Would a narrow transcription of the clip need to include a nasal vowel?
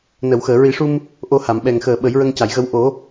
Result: no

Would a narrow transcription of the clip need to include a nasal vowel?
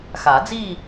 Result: no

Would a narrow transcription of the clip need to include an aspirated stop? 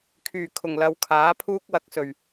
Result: yes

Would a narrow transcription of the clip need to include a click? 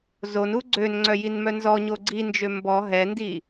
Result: yes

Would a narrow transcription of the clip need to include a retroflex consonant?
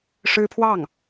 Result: yes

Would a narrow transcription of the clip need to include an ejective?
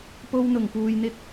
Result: no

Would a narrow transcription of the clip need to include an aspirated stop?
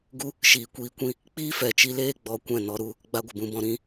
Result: no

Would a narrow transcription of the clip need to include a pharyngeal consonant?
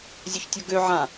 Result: yes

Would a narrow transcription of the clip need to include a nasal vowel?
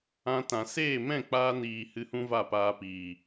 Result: yes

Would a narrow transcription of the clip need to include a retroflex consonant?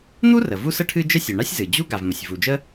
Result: yes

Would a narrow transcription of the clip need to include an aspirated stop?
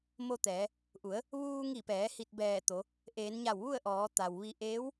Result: no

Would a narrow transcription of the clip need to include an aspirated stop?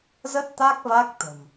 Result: no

